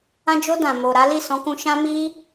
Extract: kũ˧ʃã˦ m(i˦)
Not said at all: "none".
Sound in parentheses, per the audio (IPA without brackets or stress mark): i˦